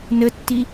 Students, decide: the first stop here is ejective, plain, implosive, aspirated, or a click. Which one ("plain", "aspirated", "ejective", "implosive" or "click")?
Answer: plain